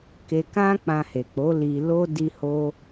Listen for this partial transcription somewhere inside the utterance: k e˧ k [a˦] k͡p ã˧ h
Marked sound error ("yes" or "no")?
yes